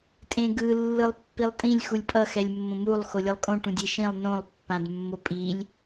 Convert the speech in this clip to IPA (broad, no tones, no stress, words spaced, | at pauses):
tʼẽɡɯ lːɯlˠpːilˠtʼĩlʲ xulʲpʼʌ xɛlʲmːõmulˠ xolʲɯlˠkʼõ ʈũdʲeʃĩlˠ nõlˠ pːãdmːopʼilʲ